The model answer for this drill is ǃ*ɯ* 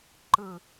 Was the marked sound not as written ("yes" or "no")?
no